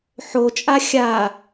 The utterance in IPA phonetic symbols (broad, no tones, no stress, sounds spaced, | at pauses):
ħ o t͡ʃʼ a xʲ a